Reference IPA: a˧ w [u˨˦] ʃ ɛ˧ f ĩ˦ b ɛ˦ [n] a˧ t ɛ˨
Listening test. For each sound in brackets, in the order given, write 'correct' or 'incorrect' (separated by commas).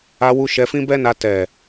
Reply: incorrect, correct